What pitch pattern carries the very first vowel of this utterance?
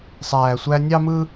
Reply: low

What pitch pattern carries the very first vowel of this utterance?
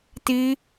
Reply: high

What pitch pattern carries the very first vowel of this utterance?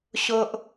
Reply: high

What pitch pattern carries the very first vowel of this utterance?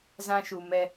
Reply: high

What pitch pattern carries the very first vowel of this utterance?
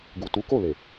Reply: low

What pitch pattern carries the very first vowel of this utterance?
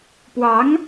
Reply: rising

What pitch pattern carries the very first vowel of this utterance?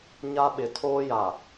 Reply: high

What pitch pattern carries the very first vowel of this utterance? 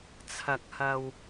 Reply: low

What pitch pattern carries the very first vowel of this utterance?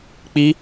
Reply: high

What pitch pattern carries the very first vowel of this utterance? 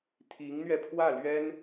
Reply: rising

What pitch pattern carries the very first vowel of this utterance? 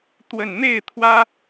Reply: low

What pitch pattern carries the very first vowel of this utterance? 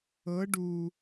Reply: rising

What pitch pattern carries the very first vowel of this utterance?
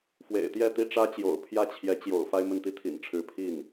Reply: low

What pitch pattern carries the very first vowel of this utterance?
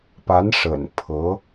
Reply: rising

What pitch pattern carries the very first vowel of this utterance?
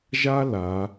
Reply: high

